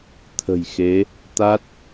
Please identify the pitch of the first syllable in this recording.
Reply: low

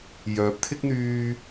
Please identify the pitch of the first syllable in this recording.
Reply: rising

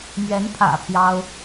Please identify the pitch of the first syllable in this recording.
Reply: rising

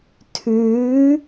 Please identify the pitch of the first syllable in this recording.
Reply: rising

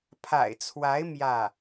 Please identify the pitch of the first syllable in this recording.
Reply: low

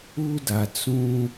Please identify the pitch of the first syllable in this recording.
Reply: high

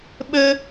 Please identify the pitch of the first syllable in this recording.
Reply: high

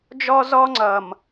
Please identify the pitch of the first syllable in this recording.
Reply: high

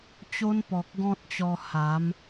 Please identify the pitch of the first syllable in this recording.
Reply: high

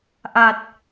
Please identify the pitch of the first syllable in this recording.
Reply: low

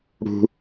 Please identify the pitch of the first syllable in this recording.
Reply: high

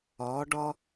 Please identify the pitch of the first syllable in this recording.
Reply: rising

